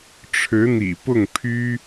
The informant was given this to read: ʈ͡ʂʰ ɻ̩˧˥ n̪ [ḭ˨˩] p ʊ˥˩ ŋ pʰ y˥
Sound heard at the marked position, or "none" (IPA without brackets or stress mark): ḭ˨˩